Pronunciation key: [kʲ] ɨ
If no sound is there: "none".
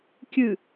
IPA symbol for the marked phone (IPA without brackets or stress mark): kʲ